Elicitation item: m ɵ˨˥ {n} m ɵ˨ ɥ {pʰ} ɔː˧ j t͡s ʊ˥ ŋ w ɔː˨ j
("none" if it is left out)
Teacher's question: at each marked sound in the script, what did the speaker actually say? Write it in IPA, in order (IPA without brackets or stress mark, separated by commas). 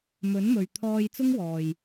n, t̪ʰ